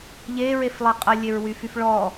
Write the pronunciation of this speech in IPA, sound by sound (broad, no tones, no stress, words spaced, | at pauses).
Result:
ʎeɹeflˠe qʼəlʲeɹwyfyf ɭɔ